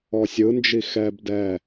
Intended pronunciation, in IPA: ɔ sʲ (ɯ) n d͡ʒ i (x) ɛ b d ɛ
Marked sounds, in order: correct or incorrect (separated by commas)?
correct, correct